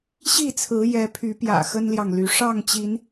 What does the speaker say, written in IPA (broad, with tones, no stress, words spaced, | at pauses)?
ɕi˥˨t͡sʰɹ̩˨˦ jɛ˨˦pʰy˨˦pjä̰˨˩ xə˦nljɑ˨ŋly˨˦ ʂɑ˥˨ŋt͡ɕi˨˦n